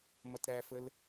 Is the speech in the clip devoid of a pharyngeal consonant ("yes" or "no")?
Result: yes